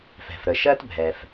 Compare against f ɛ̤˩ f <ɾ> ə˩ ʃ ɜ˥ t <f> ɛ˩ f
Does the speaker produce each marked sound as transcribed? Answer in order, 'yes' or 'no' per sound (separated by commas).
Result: yes, no